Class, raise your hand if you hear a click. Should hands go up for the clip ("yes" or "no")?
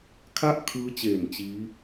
no